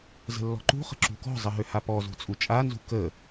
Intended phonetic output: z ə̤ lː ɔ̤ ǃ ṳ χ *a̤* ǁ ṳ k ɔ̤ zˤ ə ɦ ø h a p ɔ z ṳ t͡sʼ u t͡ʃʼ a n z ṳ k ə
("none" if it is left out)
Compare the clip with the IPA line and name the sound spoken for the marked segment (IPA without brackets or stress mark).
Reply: ə̤